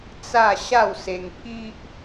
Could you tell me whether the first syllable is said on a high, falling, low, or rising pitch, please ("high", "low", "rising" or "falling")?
falling